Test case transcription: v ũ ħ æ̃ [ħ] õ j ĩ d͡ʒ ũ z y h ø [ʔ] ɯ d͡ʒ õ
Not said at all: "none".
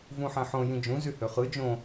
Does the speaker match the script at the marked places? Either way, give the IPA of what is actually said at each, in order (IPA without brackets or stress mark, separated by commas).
ħ, χ